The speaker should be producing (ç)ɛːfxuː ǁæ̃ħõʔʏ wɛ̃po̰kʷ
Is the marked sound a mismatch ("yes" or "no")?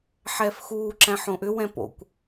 yes